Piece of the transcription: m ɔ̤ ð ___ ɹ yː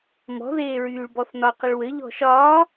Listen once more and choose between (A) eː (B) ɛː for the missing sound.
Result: A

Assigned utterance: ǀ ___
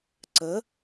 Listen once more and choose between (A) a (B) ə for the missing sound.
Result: B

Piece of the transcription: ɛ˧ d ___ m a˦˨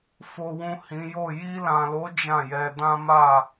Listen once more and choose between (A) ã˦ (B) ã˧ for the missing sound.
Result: A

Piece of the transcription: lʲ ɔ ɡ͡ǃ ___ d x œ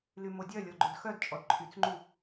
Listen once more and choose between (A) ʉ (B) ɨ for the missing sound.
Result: A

